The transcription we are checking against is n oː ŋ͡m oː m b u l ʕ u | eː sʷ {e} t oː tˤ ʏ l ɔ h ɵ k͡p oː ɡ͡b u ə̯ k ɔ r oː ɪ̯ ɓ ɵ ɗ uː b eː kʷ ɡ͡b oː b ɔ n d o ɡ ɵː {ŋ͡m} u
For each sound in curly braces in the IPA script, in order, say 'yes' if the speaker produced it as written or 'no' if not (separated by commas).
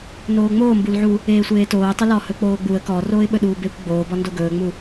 no, yes